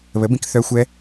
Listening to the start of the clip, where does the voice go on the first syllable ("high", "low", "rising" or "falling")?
rising